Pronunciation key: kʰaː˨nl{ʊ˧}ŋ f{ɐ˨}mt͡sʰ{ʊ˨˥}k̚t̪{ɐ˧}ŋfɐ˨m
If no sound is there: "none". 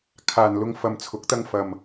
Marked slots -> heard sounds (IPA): ʊ˧, ɐ˨, ʊ˨˥, ɐ˧

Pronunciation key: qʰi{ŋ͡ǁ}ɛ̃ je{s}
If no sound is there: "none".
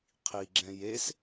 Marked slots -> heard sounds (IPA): ɡ͡ǁ, s

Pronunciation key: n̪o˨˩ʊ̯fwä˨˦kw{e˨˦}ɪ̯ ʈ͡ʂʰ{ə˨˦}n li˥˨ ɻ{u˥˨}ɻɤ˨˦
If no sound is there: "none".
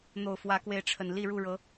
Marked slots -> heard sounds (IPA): e˨˦, ə˨˩, u˥˨

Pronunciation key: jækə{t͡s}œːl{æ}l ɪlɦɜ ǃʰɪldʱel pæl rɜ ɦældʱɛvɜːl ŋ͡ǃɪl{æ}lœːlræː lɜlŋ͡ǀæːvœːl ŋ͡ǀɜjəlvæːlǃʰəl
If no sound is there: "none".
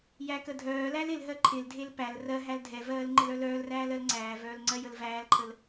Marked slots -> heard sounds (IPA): dʱ, æ, œ

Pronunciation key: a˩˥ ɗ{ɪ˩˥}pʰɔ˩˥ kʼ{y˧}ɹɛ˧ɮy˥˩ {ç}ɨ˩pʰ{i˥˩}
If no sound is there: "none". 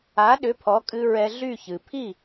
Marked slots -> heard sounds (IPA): ʏ˩˥, ɨ˧, ç, i˥˩

